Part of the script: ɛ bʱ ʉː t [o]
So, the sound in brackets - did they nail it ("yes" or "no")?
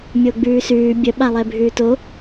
yes